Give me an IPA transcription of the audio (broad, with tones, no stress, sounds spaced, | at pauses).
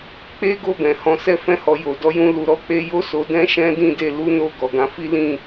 k͡p e˦ ɡ o˦˨ b ɛ̃˨ h ɔ̃˧ s ɛ˧ f ɛ̃˧ h ɔ˨ j o˨ d ɔ˨˦ j ũ˧ l u˧ ɾ ɔ˦ k͡p e˦ j o˦ s o˧ d ɛ̃˦ ʃ ɛ̃˦ d ĩ˦˨ d e˧ l u˦ n o˦˨ ɡ ɔ˨ ɡ ã˧ f i˦ l ĩ˦˨